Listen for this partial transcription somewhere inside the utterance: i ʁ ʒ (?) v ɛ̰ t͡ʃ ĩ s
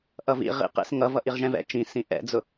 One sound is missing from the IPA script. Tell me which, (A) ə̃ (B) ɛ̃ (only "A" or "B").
B